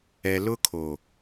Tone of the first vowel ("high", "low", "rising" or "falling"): low